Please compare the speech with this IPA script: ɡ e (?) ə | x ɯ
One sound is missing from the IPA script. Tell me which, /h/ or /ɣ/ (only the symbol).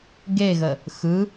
ɣ